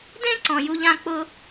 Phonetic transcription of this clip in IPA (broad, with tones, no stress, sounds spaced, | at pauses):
d ẽ˥ ǀ ɔ̃˧ j u˥ ʎ ã˥ k͡p ʊ˥